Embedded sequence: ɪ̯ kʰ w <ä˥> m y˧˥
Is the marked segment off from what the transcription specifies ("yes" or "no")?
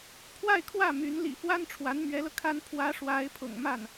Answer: yes